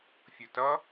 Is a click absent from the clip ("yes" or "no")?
yes